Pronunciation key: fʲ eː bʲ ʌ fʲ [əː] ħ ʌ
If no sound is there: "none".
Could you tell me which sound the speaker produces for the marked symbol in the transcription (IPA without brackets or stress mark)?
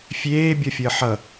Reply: əː